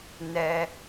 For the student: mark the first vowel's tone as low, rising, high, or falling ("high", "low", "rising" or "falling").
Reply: high